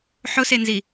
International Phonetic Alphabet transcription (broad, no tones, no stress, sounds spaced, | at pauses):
ħ ʊ s e n z i